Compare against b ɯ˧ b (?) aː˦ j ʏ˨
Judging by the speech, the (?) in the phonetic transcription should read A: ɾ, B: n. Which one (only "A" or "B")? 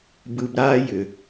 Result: A